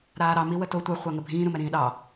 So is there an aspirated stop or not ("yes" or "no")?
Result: no